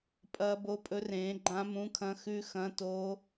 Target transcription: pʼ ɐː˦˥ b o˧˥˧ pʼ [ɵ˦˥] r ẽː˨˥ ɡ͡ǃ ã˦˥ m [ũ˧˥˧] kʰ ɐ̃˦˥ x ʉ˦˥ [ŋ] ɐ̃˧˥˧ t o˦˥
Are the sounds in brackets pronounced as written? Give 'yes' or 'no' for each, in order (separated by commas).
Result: yes, yes, no